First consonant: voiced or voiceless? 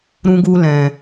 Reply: voiced